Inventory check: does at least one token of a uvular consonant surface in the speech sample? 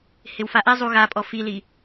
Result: no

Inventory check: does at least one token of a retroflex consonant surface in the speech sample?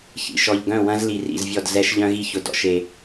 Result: no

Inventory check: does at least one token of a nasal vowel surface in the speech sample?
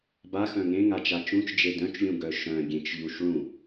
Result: yes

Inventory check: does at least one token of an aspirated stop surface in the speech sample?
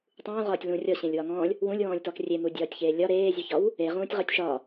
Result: no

